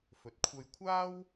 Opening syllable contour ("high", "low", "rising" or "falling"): low